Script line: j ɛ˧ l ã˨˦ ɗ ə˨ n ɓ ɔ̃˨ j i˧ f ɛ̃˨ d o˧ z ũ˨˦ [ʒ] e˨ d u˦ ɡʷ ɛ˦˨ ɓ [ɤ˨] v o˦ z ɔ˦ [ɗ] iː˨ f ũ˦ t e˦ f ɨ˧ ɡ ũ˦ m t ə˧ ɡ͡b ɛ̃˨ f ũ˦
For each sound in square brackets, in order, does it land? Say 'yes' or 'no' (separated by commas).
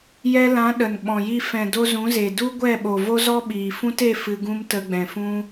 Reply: no, no, no